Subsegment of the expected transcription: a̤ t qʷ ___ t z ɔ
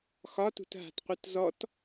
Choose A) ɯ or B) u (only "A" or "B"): A